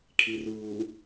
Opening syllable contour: low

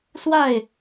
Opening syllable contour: falling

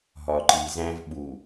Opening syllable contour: low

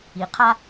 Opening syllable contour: low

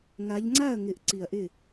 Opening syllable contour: rising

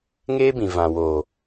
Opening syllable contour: high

